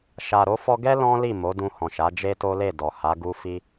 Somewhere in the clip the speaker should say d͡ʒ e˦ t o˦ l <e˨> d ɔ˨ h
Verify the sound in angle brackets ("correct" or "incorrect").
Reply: incorrect